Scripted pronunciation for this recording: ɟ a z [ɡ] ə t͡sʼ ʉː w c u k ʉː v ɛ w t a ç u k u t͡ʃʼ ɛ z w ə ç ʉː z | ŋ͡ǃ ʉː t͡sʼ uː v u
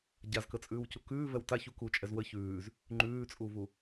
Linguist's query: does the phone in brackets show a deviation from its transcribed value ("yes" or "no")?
yes